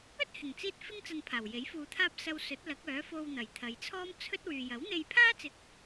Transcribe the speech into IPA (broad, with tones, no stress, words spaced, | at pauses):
ɵ˥t̚hɪ˨˩ŋt͡siː˧t̚ fɪ˥ŋ t͡sɐ˧npʰaː˨˩wje˨˥j fuː˨t̪ʰaː˧p̚ sɐ˧w sɵ˨˥t̚ lɐ˨˥k̚ œː˨˥fo˧wn̪ɐ˨˩j t̪ʰɐ˨˧jt͡sʰɔː˥mt͡sʰɵ˥t̚ wyː˨jɐ˨˥wn̪e˧jpʰaː˥ t͡sɪ˧k̚